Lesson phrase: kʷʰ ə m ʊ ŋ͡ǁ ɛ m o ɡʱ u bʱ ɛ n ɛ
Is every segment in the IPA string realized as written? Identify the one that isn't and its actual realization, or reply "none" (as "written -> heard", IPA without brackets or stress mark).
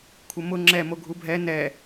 none